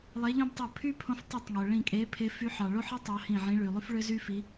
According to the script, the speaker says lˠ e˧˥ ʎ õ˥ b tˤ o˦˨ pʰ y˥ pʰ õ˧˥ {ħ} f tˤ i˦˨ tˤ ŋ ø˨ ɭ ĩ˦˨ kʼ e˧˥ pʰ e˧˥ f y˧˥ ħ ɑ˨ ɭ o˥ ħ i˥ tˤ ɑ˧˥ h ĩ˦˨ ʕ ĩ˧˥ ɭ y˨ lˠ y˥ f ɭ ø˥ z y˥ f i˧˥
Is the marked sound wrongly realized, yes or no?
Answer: yes